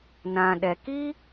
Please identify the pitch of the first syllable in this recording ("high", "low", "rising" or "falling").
low